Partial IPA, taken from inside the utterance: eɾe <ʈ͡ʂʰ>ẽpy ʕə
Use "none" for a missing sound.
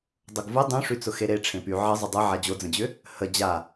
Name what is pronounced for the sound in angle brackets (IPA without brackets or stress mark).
ʈ͡ʂʰ